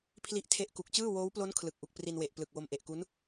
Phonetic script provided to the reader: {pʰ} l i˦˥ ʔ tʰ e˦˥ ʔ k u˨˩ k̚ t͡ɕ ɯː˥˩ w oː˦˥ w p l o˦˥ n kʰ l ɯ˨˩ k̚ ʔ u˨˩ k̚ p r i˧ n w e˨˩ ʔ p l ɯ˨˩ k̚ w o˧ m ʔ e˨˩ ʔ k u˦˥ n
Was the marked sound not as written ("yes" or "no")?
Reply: no